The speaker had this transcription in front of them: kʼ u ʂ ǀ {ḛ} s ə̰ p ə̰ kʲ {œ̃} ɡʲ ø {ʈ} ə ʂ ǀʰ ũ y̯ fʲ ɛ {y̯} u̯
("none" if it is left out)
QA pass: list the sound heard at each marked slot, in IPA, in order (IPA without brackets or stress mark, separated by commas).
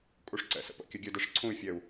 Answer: ɛ̰, œ, d, none